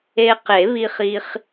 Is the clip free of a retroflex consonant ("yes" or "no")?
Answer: yes